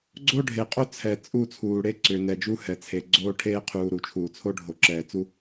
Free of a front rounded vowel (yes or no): no